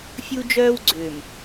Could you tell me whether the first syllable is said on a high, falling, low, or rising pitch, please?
high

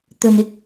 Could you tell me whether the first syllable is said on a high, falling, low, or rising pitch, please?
low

